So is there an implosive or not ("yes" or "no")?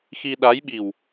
yes